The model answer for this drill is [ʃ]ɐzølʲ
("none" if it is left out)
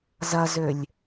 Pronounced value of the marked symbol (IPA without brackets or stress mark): z